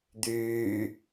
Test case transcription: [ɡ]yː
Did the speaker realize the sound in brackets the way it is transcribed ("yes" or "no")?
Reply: no